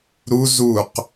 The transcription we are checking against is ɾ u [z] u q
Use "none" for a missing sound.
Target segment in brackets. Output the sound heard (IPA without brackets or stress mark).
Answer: z